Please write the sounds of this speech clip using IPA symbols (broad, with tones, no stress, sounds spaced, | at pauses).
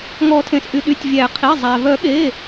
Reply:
ŋ ɔ˨˩˦ tʰ ẽ˩ s ʔ y˩˧˩ ɗ y˩˧˩ tʲ vʲ æ˨˩˦ qʰ i˩˧˩ zˤ æ˩ v œ˨˩˦ ɠ e˩˧˩